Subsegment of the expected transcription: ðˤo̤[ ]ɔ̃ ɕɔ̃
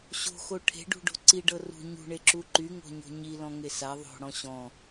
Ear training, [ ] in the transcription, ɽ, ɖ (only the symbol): ɽ